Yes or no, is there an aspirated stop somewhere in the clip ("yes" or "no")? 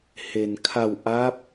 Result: yes